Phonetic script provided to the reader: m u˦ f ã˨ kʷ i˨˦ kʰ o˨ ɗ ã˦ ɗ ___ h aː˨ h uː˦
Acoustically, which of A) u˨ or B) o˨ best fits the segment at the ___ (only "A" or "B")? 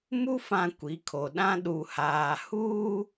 A